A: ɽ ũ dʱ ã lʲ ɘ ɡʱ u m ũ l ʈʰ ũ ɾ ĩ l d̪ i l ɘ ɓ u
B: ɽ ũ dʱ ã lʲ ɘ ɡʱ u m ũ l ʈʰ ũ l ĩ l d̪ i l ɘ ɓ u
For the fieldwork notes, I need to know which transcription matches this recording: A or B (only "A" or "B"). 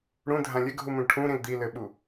A